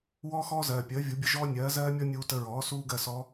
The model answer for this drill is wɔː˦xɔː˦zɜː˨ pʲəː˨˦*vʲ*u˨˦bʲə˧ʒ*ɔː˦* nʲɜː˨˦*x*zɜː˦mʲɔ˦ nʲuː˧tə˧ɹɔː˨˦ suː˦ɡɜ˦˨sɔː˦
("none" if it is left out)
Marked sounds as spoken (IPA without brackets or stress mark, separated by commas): vʲ, ɔː˦, none